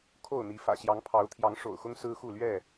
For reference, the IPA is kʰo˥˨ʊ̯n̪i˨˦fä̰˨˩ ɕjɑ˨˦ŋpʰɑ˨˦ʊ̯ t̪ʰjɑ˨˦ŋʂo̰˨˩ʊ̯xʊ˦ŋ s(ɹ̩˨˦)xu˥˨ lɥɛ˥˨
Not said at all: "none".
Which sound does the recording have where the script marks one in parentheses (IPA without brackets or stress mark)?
ɹ̩˦